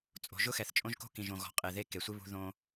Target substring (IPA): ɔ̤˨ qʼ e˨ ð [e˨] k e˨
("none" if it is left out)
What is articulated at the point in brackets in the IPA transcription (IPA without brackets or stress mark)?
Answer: e˦